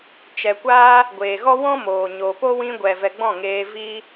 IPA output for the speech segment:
t͡ʃ ɛ˨ kʷ aː˦ | ɡʷ eː˨ ɣ ɔ˦ w ɔ̃˦ m oː˨ ɲ o˨ p o˦ w ĩ˧ ɡʷ ɛ˨ v ɛ˨ ɡ͡b ɔ̃˦˨ ŋ eː˧ v iː˦

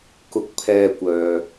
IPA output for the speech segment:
k ʊ˧ k̚ pʰ ɛː˧ kʷ œː˨

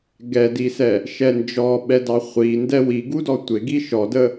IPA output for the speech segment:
ɡ ɛ d i s ɛ | ʃ ɛ n d͡ʒ ɔ ɓ ɛ d ɑ χʷ i n d ɛ w i ɡ u d ɔ tʷ ɪ ɡ i ʃ ɔ d ə

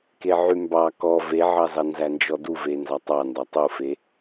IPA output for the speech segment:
k e ʕ y m b ɑ k ɔ v e ʕ ɑ z ɑ n z æ n d͡ʒ ɔ d u v e n z ɑ tˤ ɑ n d ɑ tˤ u f e

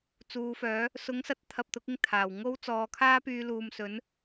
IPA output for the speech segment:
t͡s uː˨˧ f œː˨˥ | s ʊ˨˥ ŋ s ɐ˨˥ t̚ t̪ʰ ɐ˨ p̚ t̪ ʊ˨˥ k̚ ɪ˧ ŋ t̪ʰ aː˨˩ w ŋ o˥ w t͡s ɔː˨˧ kʰ aː˥ p yː˧ l uː˨ m s ɵ˨˥ n

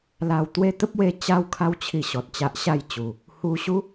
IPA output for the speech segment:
l a˧ w t̪ w e˦ t̪ ə˦ p̚ w e˧ t͡ɕ a˧ w kʰ a˧ w t͡ɕʰ i˨˩ ɕ ɔ˨ t̚ t͡ɕ a˦ ʔ ɕ a˥˧ j t͡ɕ u˨˩ | h u˧ ɕ u˦

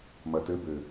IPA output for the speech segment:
m ɐ t ɘ b ɘ

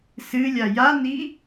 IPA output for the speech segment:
s ɨ lʲ a j a n i

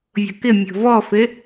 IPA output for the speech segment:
vʲ o̤ k ɪ mʲ o̤ v ɔ f ɪ

